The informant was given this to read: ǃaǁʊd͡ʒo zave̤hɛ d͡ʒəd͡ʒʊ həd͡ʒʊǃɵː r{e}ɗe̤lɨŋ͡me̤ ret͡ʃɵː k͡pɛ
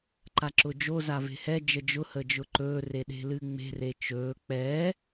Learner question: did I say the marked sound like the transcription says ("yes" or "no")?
yes